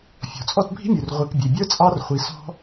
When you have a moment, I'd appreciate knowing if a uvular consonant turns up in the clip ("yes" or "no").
yes